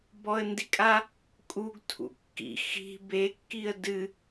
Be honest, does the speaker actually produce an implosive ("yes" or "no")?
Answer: no